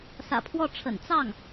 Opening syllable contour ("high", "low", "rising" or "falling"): low